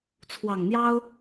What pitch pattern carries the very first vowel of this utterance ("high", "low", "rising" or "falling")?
low